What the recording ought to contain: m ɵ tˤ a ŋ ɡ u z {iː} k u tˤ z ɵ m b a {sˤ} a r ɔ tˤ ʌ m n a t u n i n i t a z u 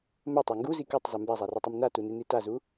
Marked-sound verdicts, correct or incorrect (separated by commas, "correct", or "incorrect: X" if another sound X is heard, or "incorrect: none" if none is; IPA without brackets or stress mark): incorrect: i, incorrect: zˤ